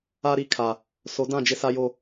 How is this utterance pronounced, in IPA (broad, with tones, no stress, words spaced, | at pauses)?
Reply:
a˦ɾi˦kʰa˨ | so˨˦dã˦˨d͡ʒɪ˦sa˦ jo˦